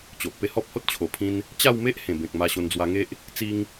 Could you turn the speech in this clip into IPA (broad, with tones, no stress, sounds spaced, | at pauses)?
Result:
t͡ɕ o˨ ʔ p e˧ h ɔ˦ p̚ h o˦ t̚ t͡ɕʰ o˨˩ pʰ ĩ˧ n | t͡ɕ a˥˧ w m e˦ ʔ h ẽ˨˩ b ẽ˨ k̚ m a˧ ɕ o˧ n d͡z w a˧ ŋ e˦ ʔ | t͡s i˦ ŋ